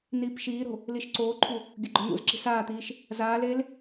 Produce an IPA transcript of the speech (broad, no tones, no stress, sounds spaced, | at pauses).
n iː p ʃ iː ɾ o̤ | l i ʃ ǀ oː ǃʰ u | ɡʲ ɐ ɡ͡ǃ ɵ n̪ ṵ z ǁ i̤ s aː t̪ iː ʃ | z aː l eː l